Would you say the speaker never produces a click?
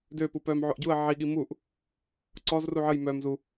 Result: no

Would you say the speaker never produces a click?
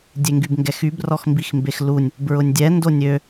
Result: yes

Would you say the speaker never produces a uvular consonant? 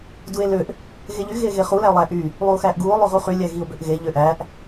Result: no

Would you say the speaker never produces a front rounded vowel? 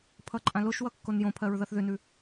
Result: no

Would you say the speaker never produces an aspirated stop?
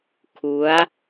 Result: no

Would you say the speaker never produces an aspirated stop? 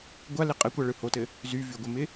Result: yes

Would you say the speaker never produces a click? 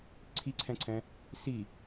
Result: no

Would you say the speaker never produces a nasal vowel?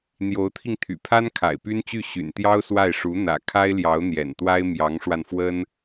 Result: yes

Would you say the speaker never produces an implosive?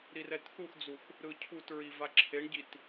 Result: yes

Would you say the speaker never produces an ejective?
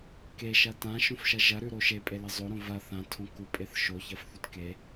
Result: no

